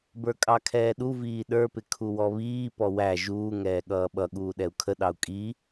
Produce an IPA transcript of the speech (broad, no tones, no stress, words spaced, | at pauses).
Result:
bə˞kʼɑkʰɛːɗu viːɗə˞pɪ kʰuwɔβiː pɔwæ ʒuː ŋɛːɠʌːɓʌ ɠuːɗɛu̯kʰəɗɑu̯ kʼi